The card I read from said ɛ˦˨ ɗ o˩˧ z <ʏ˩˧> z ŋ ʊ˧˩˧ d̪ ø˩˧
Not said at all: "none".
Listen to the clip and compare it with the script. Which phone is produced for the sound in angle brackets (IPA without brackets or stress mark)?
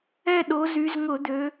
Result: y˩˧